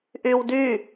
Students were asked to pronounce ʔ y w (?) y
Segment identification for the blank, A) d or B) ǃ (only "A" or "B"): A